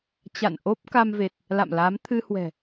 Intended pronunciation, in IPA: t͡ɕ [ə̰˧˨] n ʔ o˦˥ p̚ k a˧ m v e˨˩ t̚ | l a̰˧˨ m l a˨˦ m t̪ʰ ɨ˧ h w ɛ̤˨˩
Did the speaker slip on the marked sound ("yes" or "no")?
yes